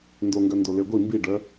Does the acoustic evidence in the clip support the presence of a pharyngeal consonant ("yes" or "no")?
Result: no